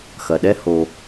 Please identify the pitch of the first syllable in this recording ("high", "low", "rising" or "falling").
low